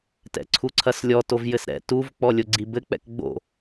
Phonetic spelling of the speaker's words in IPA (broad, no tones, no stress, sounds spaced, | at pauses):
t ɛ̰ ǀʰ u ǀʰ ɐ s lʲ ɔ t o v j ɘ s ɾ ɛ̰ t u v k͡p ɔ lʲ o ɡ͡ǀ i b ɘ k͡p ɛ̰ k ɡ͡b o̰